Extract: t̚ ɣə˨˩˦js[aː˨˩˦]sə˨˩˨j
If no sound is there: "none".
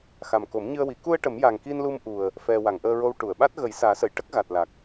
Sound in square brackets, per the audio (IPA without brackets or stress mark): aː˨˩˦